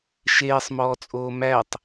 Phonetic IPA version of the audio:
ʃeːsˤmɔːt͡sʼoː mætˤ

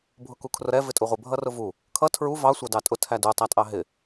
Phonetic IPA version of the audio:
bʱʊkukʰrʊɾɛ vɪtʼuʁʷɪ bʱʌrʊvu | kʰʌ tʰɹu vɑ sʷɑdɑtʼʊ tʰædu tˤætʼɑɦɪ

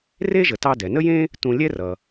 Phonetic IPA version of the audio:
re˥ʒə˩tɑ˧ dɛ˩nə˥jẽ˥ | tũ˧ lʲɛ˥rʌ˩

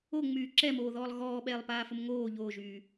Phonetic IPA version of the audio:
oŋ͡myː ǁɛmoːðɔːlˠ ɣɔːɓɛːlˠ paːfəmŋoː ʎoːʒyː

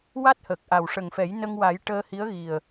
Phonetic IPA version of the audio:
wa˦˥t̚hə˨˩k̚ ʔa˨˩wʂə˨˩ŋfɛ˨˩˦jnə˧ŋ wa˨˩˦j ʈəː˧hi˧˥ə̯ ɣi˨˩ə̯

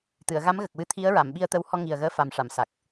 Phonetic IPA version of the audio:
t̪ɨ˨˩˨ə̯ɣa˧˥mɣə˨˩k̚wɨ˧˥ t̪ʰi˧˥ə̯ɹa˨˩˨m ɓi˧ə̯t̪ə˧˥w hɔ˧ ŋi˨˩ə̯ɣəː˧ fa˨˩mʂa˨˩˨m sa˨˩k̚

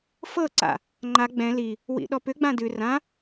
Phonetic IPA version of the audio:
fɤ ǀa̰ | ŋ͡ǃa ɡ͡bɛ̃ li | wḭɗɔpʏ ɡ͡bãdʉ rã

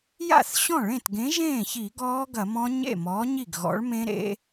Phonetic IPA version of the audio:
ja̰˥˩θɕɔ̃˥˩ɭẽ˥˩tɡẽ˨˥ ʒẽː˥˩çi˧˩˧ ɡɔː˦˥ɡɐ˧˩˧ mɔ̃˦˥ ɲḛ˥˩ mɔː˨˥ɲi˥˩ɡɣɔ̰˨˥ɭmẽ˦˥ ɾḛ˦˥

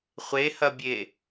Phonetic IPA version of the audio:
χʷehɐbʲe

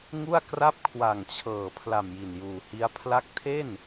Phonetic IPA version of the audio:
ŋu˥˩a̯kra˥˩p̚ kʰwa˨˩ŋt͡ɕʰɤː˨˩ pʰla˨˩m ji˨˩njuː˨˩hi˦˥a̯ pʰla˦˥k̚tʰe˥˩n

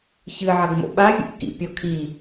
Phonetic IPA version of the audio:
çɨʕɐɡ mo̰ɓavʲṵʔ kḭpʲɔ kʰi

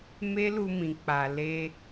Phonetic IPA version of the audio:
me˦lu˧mĩ˨k͡pa˨ le˧

